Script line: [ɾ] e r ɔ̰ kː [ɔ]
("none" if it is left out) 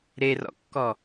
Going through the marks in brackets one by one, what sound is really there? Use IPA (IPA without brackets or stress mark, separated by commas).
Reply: ɾ, ɔ